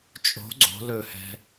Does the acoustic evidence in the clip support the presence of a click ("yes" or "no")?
yes